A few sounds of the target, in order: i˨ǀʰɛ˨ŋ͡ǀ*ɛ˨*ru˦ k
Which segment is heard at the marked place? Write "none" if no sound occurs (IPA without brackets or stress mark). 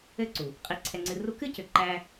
ɨ˨